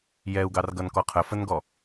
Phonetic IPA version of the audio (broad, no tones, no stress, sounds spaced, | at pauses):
j ɛ u̯ ɡ ɑ r ɡ ʌ n k ɔ qʰ ə f ə n ɡ ɔ